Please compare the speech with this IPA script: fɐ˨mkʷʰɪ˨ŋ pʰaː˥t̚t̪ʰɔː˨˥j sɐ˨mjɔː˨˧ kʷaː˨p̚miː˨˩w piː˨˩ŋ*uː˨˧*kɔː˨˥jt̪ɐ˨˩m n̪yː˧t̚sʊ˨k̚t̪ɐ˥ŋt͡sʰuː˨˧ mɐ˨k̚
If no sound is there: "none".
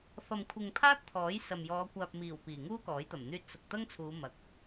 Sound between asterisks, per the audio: uː˥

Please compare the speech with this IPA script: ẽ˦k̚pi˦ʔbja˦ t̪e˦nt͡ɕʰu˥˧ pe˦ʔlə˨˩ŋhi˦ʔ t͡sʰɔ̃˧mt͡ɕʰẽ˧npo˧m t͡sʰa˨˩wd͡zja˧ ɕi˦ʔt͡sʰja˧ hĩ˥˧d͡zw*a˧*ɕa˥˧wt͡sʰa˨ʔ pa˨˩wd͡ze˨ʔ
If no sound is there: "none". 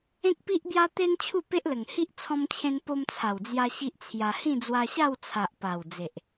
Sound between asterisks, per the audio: a˧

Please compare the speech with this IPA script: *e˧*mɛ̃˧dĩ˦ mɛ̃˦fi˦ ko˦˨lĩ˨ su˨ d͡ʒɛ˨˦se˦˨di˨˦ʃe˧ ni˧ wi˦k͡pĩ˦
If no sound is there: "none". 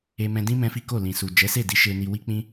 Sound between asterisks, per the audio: e˧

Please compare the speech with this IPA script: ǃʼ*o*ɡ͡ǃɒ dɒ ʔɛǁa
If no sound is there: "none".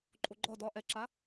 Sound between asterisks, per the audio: o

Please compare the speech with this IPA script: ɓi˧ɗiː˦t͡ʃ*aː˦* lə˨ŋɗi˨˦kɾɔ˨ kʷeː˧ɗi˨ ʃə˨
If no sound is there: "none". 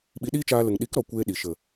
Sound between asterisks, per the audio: aː˧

